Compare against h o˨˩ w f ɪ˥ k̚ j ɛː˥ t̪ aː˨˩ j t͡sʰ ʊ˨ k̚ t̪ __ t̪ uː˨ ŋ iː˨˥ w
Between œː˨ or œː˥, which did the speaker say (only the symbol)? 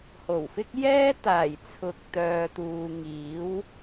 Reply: œː˨